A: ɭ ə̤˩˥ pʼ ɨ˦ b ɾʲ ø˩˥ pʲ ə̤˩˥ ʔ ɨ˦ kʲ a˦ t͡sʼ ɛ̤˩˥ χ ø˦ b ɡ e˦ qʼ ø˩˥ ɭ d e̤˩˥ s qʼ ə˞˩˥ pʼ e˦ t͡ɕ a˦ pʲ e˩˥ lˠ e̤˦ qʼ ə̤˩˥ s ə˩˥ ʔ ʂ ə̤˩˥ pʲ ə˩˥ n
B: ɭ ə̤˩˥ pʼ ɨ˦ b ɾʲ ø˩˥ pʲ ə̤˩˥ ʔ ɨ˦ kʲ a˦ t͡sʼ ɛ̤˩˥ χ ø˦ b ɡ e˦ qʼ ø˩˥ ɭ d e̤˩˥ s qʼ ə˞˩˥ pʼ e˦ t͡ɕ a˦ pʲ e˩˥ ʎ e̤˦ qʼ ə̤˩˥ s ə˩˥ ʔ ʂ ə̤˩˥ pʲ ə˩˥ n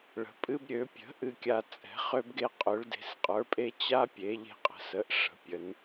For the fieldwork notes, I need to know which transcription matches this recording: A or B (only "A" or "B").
B